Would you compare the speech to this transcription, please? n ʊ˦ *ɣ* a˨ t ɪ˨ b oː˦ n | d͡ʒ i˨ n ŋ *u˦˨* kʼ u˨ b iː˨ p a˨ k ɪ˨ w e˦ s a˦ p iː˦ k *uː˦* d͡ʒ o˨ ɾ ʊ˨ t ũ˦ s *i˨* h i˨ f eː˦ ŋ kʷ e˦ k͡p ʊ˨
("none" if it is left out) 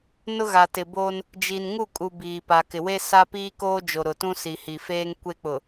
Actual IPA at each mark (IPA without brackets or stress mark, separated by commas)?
ɣ, u˦˨, oː˦, i˨